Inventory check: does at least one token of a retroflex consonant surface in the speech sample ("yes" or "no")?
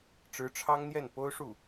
yes